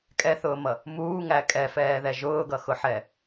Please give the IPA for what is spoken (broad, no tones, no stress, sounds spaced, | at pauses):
kʼ ɛ θ ʊː m ʌ | m uː ŋ æ kʼ ɛ f ɛː ð ɛ ʒ ʊː ɡ ʌ x ʊ ħ ɛ